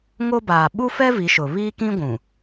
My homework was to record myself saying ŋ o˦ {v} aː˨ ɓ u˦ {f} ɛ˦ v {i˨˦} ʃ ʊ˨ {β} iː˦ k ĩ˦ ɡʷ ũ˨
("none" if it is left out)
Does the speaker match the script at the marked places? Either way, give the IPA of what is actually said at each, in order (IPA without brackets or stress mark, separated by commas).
b, f, i˨˦, β